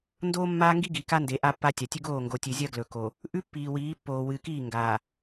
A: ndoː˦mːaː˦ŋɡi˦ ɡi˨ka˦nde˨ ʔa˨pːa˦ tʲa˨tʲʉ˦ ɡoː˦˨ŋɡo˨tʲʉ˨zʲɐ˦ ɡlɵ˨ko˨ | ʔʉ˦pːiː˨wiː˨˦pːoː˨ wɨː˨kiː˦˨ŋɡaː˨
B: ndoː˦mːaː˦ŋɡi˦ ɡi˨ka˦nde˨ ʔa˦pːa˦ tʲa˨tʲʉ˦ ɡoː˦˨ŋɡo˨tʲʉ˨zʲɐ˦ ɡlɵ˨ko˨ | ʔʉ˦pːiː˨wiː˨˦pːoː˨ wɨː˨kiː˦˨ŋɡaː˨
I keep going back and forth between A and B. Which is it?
B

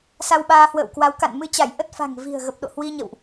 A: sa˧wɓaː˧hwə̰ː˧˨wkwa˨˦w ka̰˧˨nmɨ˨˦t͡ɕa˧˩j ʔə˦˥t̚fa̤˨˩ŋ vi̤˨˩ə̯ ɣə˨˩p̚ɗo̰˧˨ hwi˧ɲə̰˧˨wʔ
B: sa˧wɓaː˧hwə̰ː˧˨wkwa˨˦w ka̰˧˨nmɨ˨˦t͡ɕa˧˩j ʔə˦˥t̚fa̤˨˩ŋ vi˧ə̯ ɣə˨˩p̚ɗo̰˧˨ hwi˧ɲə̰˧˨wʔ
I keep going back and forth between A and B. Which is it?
A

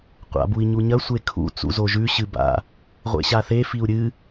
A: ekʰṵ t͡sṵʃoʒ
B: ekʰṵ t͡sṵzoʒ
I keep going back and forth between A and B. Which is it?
B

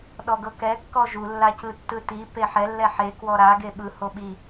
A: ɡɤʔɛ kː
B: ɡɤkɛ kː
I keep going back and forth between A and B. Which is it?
B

